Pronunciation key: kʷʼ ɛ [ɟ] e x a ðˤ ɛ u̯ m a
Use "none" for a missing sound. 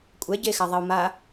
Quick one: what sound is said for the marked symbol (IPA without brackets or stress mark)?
ɟ